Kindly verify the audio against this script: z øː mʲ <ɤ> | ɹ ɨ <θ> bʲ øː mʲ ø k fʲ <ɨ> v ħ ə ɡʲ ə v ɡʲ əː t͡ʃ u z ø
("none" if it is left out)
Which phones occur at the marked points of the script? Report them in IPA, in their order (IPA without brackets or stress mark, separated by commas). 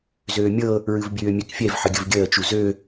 ɤ, v, ɛ